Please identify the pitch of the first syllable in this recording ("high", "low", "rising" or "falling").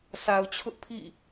low